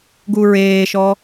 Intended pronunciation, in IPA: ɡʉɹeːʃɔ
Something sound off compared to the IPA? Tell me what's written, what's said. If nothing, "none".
ʉ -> u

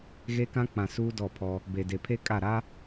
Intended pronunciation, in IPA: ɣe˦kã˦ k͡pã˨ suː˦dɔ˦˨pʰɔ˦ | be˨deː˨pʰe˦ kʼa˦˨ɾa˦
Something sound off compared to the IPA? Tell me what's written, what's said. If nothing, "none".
eː˨ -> e˨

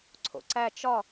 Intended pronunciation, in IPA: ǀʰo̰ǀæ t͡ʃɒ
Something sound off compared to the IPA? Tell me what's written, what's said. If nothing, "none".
none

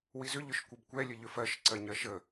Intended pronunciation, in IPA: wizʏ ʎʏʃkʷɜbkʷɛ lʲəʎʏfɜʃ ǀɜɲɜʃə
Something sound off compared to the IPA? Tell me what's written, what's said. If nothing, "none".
none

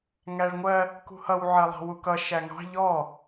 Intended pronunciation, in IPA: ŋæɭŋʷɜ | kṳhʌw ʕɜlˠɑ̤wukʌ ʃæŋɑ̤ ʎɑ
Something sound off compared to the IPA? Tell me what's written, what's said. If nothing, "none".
ɑ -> ɔ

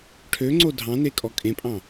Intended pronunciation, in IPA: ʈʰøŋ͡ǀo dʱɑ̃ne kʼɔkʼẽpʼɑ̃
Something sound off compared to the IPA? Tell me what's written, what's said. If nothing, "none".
none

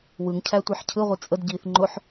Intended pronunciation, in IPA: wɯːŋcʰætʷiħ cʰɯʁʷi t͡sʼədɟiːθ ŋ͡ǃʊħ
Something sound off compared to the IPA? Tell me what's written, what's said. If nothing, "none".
ɯː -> ɯ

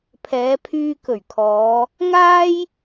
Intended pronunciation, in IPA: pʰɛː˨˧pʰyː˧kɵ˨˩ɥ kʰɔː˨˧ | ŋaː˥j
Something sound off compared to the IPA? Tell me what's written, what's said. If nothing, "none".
none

